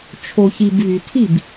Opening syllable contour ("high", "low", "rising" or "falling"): low